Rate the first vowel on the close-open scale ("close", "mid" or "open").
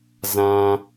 open